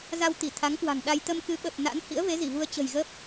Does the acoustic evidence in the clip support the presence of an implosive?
yes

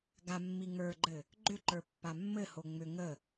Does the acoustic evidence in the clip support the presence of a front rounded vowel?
yes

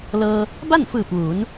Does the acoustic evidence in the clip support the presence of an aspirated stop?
no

